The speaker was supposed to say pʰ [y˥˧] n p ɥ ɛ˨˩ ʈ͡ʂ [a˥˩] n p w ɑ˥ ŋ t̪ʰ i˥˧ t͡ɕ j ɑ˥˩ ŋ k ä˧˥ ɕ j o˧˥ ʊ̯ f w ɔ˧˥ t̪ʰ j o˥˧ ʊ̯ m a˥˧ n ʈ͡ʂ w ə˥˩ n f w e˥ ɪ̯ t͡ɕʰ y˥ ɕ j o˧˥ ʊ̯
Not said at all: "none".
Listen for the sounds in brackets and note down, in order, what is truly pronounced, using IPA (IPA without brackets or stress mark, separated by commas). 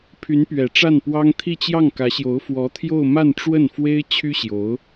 y˧˥, a˥˩